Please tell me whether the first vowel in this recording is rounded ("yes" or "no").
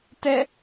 no